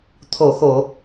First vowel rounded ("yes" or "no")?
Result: yes